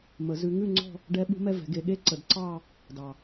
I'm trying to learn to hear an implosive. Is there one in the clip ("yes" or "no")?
yes